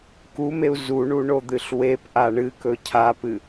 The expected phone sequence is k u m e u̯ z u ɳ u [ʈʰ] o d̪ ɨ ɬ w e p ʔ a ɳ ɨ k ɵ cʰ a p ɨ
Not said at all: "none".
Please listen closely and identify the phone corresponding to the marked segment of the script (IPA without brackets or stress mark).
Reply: ɳ